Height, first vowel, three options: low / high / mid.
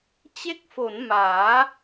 mid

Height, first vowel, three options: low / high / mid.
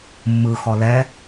high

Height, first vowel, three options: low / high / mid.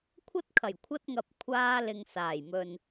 low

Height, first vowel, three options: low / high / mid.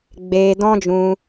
mid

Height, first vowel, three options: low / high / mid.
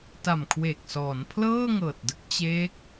low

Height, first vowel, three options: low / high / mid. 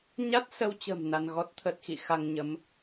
low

